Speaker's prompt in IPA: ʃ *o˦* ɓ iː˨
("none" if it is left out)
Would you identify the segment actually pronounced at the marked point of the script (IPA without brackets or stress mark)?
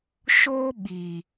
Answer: oː˦